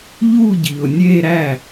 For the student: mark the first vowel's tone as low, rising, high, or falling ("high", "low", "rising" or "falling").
falling